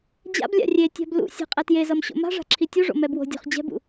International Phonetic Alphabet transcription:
d͡ʑ a̰ b lʲ a̰ rʲ e tʲ a̤ b l ṵ sʲ a̤ qʼ ɛ t j e z ʌ m ɕ o̰ m a̤ ʐ a̤ ǁʰ i tʲ u ʐ o̰ m ɛ b w o̤ dʲ o̤ χ d͡ʑ ɛ̤ b ṵ

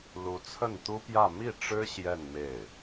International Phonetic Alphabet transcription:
l u˧˥ t͡sʰ ə˥˩ n t̪ u˥ p j ä˥˧ m i˥˩ ʈ͡ʂ ɻ̩˥ ɕ j ɛ˥˧ n m e˥˩ ɪ̯

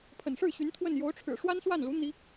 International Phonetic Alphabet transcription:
pʰ ə̰˨˩ n ʂ ɻ̩˥˩ ɕ y˧˥ n t̪ʰ w ə˥˩ n j o˧˥ ʊ̯ ʈ͡ʂʰ ɻ̩˨˩ ʂ w a˥ n s w a˥˩ n l u˧˥ n̪ i˥

